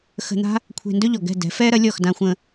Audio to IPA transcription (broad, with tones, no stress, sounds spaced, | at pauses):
x ə̤˧ n̪ a̤˥ | kʷʰ e̤˧ n d ɵ˥ ʎ ɔ˩ ɡ ɛ̤˥˩ d ɛ̤˩˥ f ɛ˥ ɾ ɐ˩˥ lʲ ɔ˥˩ x d ã˧ xʷ ə̃˧